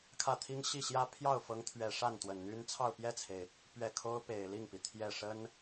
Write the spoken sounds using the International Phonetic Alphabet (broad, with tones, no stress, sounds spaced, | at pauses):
kʰ ä˥˩ t̪ʰ i˥ ŋ ɕ i˥˩ ɕ j ä˥ pʰ j ɑ˥˩ ʊ̯ f ɤ˧˥ ŋ t̪ʰ ɥ ɛ˨˩ ʂ a˥˩ n t̪ w ə˨˩ n n̪ y˥ n t͡sʰ ɑ˥˧ ʊ̯ p j ɛ˥˩ t͡sʰ e˩ ɪ̯ | p ɥ ɛ˥˩ kʰ o˥ ʊ̯ p e˨˩ ɪ̯ l i˥˩ ŋ p i˩ t̪ʰ j ɛ˥˩ ʂ ə˥ n